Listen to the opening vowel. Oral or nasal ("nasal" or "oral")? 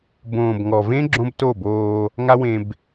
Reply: nasal